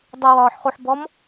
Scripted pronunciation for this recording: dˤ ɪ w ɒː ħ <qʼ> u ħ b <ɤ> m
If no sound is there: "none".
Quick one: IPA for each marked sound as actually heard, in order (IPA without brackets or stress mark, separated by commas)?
χ, ɔ